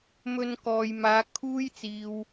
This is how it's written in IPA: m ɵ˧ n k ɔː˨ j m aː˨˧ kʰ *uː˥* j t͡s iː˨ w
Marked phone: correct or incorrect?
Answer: correct